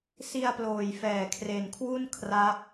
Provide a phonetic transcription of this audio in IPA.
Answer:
s i˧ a̯ p l oː˨˩ j f ɛː˨˩ kʰ r e˨˩ n kʰ w u˥˩ n kʰ r a˦˥ p̚

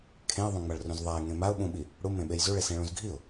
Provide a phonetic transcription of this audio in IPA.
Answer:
kʰ ẽ ə̯ ðˤ õ ŋ͡m a ɭ r ũ z ðˤ a ɪ̯ ŋ ẽ m a ʊ̯ ɓ ũ ɓ i | ɽ u m ẽ ɓ e j z u ɭ e s ẽ ɭ ũ z ɡʱ i ʊ̯

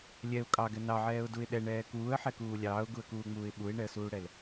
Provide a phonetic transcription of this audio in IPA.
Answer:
lʲ ɛ ʊ̯ kʼ ɑ ɡ ɛ n ɑ ʕ ɛː ʊ̯ d u ɪ̯ ɗ ɛ ɳ ɛː k uː ə̯ ħ ɛ k uː lʲ ɑː ʊ̯ ɡ u ə̯ k uː ŋ͡m uː ɪ̯ ɓ u ɪ̯ ɳ ɛ ə̯ s uː ɽ ɛ l

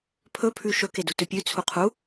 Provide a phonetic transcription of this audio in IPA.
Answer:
pʰ ɵ pʰ ʉ ʃ ɵ k e d u t ɵ pʲ ʉ t͡sʰ u qʰ u

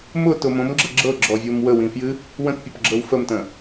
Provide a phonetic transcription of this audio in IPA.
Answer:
m ʊ t ʊ m õ m ɡ͡ǁ ʌ ɡ͡ǁ ɤ ɡ͡ǁ ɔ vʲ o m w ə w ĩ f j ɨ | w ə̃ t pʲ ʊ p ɡ͡ǁ ɤ w f ə m t ə̃

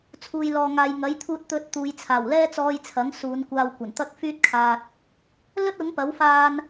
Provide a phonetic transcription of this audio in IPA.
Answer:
t͡sʰ uː˨ j l ɔː˨ ŋ aː˨ j ŋ ɐ˨˥ j t̪ʰ uː˧ t̚ t̪ ɵ˧ t̚ t̪ uː˨˧ j t͡sʰ aː˨˩ w l ɛː˥ t͡s ɔː˧ j t͡sʰ ɐ˨˥ ŋ s uː˨˧ n kʷ aː˧ w kʷ ɐ˨˩ n t̪ ɐ˥ k̚ f yː˥ t̚ kʰ aː˧ t̚ | l ɵ˥ t̚ ʊ˨˥ ŋ p ɐ˨˥ w f aː˧ n

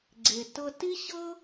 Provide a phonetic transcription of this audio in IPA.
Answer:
ɡ͡ǀ e˩ t ɤ˧ t i˥ ɕ ɤ˥

